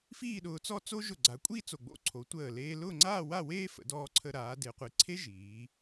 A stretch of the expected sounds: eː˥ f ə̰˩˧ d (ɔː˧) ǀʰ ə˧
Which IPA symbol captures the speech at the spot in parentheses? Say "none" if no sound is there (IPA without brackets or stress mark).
ɔː˧